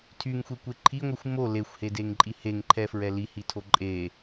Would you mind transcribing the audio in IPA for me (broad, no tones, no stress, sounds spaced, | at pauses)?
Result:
tʰ y ŋ xʷ e kʷ e ǃʰ i ŋʷ i xʷ m o l e xʷ h e d e ŋ ǃʼ i h e ŋ ǃʰ ɛ f ɹ ɛ l i h i tʰ o ǃʼ e